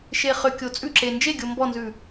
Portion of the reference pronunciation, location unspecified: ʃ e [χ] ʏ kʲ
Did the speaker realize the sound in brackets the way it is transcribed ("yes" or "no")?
yes